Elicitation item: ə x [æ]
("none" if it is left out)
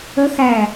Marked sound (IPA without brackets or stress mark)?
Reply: æ